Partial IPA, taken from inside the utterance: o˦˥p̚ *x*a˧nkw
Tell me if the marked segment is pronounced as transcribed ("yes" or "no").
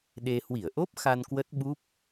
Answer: yes